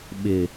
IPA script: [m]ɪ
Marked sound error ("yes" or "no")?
yes